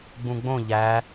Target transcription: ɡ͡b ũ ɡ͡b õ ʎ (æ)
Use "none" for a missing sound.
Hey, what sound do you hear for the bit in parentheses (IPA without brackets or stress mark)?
æ